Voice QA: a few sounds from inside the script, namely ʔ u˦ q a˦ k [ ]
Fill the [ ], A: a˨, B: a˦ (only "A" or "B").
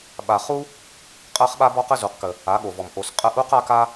B